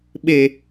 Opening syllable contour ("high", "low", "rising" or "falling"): low